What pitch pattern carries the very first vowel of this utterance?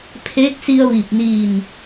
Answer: rising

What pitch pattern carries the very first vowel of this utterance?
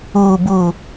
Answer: low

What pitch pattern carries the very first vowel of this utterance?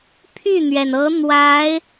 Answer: falling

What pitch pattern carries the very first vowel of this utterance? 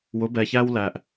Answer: rising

